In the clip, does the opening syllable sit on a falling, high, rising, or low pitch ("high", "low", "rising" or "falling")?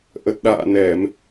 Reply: low